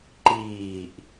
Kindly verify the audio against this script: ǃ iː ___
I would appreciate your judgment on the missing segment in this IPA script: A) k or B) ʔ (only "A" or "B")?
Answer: B